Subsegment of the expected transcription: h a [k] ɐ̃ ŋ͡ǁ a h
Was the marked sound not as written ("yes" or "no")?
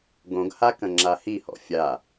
no